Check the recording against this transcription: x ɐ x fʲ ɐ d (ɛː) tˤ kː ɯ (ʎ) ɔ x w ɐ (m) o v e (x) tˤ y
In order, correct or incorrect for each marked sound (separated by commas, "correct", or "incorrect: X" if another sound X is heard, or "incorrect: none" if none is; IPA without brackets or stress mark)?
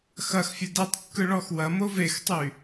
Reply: incorrect: ɛ, incorrect: ɭ, correct, correct